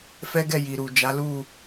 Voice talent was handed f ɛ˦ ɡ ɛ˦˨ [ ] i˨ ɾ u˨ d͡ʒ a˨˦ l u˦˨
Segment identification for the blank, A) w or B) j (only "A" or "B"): B